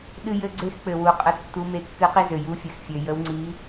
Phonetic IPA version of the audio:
ɗ ɨ˥ j ɘ˥ ɡ͡ǀ e˥ x k͡p ɘ˨ w u˨ qʼ ə˧˥ tː u˧˥ m e˧˥ kː ɨ˧˥ q i˥ z ø˨ j u˧˥ fʲ ɘ˨ x fʲ ø˨ j ə˧˥ w ŋ͡ǀ i˧˥

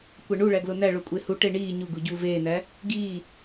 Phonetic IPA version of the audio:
kʷ æ ɳ u ɭ æ ɡ l o n æ ɭ o kʷʼ e h u ʈ e ɳ iː ɲ u ɡ u ɟ u v eː n æ | ɡ iː

